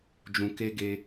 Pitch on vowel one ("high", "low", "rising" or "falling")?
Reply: low